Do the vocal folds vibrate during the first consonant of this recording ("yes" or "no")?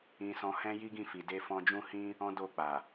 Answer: no